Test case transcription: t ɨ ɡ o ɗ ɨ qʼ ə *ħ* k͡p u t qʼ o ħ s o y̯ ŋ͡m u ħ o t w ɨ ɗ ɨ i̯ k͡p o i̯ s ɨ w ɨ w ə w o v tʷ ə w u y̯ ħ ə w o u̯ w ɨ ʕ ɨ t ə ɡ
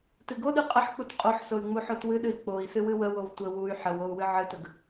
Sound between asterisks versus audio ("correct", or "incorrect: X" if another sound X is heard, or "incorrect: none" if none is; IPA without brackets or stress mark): correct